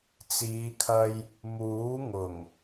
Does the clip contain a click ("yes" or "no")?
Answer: no